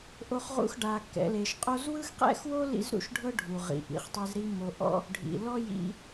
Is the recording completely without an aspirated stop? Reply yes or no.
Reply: yes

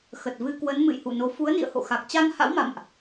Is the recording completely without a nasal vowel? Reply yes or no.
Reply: yes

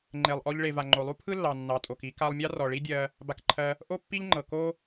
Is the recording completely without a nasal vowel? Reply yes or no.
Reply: yes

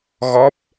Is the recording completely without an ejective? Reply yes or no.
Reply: yes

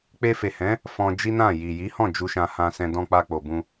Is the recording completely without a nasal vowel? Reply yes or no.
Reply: no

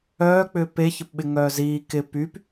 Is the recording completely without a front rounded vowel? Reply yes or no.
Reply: no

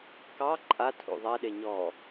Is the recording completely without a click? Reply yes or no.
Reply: no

